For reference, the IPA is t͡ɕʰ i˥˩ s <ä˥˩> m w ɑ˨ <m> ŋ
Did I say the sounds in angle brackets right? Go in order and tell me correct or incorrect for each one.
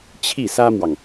incorrect, incorrect

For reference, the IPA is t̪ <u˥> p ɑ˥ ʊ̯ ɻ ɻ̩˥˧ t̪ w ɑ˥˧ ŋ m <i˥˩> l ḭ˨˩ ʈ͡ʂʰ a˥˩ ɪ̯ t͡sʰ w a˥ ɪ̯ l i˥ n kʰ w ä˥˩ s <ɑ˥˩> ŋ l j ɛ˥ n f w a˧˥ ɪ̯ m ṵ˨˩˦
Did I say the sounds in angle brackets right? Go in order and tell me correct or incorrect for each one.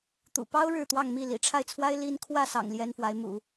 incorrect, correct, incorrect

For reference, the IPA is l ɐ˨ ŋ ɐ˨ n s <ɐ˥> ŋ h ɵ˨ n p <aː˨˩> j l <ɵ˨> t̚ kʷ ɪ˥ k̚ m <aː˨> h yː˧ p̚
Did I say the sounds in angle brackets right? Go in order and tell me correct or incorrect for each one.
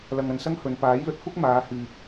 correct, incorrect, correct, incorrect

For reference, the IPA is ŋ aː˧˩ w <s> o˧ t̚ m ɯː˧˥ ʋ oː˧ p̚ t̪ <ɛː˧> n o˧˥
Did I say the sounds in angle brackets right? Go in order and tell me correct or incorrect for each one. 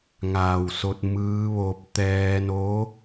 correct, correct

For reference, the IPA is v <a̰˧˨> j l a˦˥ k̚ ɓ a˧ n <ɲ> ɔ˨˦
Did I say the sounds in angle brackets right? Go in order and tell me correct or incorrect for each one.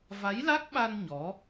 incorrect, correct

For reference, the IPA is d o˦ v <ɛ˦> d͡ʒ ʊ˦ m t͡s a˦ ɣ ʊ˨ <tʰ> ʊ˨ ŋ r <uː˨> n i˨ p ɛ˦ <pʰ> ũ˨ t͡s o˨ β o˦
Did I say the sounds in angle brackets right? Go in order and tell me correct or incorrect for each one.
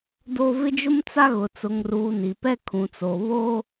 incorrect, incorrect, correct, incorrect

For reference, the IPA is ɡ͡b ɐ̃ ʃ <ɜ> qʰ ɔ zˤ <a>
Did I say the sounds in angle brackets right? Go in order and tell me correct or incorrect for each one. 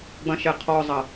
incorrect, incorrect

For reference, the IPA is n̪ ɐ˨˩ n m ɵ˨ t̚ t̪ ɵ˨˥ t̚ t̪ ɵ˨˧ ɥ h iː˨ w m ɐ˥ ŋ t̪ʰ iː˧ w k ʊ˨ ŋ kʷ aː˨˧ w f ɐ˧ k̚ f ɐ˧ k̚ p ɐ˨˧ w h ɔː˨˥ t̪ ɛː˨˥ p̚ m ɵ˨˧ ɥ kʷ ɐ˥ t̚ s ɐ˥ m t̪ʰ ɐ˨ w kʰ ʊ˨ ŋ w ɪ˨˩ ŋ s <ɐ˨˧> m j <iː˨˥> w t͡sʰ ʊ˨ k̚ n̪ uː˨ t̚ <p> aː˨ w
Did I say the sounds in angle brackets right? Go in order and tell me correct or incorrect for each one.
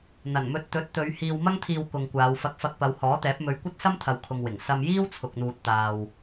incorrect, incorrect, incorrect

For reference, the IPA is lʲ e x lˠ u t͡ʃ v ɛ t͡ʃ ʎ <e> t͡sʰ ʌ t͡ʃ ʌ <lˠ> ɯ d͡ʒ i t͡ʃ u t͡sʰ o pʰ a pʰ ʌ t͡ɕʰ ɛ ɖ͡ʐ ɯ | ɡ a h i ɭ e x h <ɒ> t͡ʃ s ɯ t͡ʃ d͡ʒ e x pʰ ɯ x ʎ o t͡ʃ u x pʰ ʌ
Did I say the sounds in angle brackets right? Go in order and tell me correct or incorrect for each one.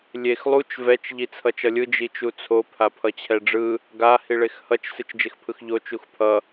incorrect, incorrect, incorrect

